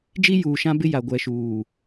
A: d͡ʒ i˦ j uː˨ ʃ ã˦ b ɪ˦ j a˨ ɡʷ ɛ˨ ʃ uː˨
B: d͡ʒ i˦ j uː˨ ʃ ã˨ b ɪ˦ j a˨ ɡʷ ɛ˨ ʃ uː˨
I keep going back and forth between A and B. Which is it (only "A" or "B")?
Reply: A